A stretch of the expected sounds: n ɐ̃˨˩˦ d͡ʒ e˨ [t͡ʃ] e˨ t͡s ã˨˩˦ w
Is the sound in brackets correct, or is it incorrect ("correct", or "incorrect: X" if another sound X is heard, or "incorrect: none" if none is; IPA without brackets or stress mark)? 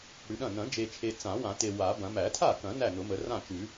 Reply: incorrect: t͡ʃʰ